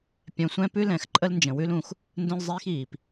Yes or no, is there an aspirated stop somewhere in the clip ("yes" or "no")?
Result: no